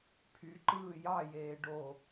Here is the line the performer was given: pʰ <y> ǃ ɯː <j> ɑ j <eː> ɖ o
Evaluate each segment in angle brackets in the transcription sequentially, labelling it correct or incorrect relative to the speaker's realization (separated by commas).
correct, correct, correct